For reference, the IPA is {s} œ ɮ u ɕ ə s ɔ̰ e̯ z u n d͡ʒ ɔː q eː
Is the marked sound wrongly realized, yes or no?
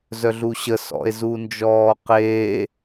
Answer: yes